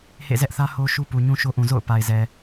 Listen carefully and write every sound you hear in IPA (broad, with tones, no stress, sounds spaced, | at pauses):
h ḛ˦˨ z ɛ˦ ʔ θ ä˦ h o˦ ʃ u˦ p u˨ ɲ ũ˦ ʃ o˦ ʔ ũ˨ z o̰˦˨ ʊ̯ p a˨ ɪ̯ z ɛ˨